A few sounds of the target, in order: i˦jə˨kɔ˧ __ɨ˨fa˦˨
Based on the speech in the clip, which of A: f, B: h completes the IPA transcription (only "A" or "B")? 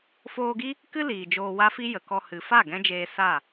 B